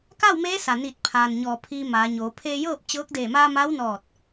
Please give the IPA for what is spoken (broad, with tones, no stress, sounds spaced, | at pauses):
k a˥˨ w m eː˧˥ s a˩ n iː˧˩ t̚ pʰ aː˩ n ɲ ɔː˩ pʰ iː˧ m aː˩˧ ɲ oː˩˧ pʰ eː˧ j ɤː˥˨ p̚ t͡ɕ ɤː˧˥ k̚ d eː˧˩ m aː˧ m a˧˥ w n ɔː˧˩ t̚